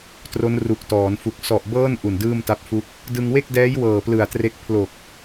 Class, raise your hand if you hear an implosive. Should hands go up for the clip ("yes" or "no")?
no